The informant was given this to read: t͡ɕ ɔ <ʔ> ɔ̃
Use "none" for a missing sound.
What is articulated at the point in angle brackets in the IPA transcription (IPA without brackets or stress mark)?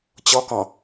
k